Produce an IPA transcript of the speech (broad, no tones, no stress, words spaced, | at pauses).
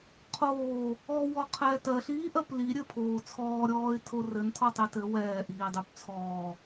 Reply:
qʰoː | ɔ wɔqʰɛːtɜɬ iːʔɜpli ɾʲɘ pʰoːt͡sʰɔː ɾʲɔːɪ̯tʰorɘn tʰɔtˤitɘ wɛː ʔiːdˤypt͡sʰɔː